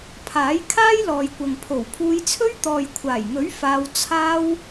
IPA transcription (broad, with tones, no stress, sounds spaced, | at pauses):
pʰ aː˨˥ j kʰ aː˥ j l ɔː˨ j kʷ ɐ˨ ŋ pʰ o˨˩ w pʰ uː˧ j t͡sʰ ɵ˥ ɥ t̪ ɔː˨ j kʷʰ aː˨˩ j ŋ ɵ˨˥ ɥ f aː˧ w t͡sʰ aː˥ w